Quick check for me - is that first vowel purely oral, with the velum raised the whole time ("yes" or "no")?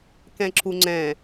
no